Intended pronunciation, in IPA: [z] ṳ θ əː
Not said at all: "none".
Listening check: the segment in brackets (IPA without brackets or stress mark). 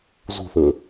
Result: z